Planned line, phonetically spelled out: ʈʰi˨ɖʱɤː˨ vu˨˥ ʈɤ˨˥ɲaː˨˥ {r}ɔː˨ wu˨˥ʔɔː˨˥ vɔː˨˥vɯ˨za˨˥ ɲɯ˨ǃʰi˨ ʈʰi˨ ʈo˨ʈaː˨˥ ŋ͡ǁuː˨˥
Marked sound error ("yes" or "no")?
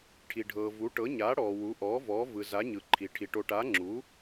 yes